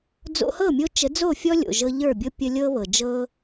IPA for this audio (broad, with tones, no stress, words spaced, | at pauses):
d͡zo̰˧hɤ˦˨ mʲo˦ t͡ʃə˨˦d͡zo˦˨fʲɔ˦ lʲo̰˨ʒɤ˧ʎə˞˦˨bʲɤ˦ pʲə˧ lʲɤ˦βɤ˨d͡ʒɤ˦